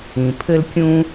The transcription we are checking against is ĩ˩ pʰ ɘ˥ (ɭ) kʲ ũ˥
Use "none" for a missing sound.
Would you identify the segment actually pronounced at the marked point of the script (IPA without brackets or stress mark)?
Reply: l